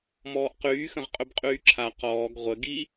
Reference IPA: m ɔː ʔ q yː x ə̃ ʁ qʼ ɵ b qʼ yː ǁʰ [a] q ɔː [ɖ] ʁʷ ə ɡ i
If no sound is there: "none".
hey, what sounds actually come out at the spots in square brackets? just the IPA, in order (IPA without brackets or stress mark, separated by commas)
a, ɡ